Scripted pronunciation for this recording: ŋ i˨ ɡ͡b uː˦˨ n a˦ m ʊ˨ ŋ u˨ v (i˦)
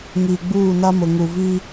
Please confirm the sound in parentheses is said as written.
yes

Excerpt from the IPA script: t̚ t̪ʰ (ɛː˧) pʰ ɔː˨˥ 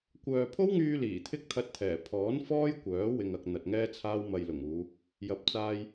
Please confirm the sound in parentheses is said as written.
no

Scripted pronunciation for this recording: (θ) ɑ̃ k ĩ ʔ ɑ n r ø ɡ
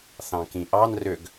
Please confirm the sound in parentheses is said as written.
yes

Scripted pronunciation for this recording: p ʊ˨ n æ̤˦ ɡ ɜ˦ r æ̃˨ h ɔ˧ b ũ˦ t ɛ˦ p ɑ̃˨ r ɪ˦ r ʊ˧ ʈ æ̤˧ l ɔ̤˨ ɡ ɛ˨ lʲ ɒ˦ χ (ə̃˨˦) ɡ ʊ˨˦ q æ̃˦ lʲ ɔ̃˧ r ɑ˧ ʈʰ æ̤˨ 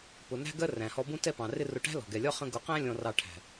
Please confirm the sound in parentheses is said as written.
no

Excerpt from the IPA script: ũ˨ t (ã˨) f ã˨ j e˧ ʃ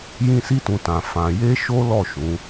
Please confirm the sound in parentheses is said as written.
yes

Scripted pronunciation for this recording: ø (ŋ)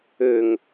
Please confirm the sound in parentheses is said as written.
yes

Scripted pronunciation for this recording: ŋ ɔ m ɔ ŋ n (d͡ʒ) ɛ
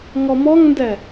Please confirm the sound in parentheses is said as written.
no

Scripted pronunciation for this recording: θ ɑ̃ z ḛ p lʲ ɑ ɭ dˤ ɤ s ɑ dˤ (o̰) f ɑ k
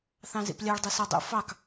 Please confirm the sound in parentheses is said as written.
yes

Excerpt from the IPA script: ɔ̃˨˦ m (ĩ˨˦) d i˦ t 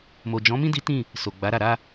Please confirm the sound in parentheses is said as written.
no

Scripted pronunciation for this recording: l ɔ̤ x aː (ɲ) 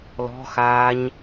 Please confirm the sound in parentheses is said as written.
yes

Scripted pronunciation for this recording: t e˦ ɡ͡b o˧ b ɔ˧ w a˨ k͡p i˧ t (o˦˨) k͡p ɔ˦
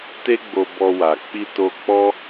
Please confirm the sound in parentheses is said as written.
no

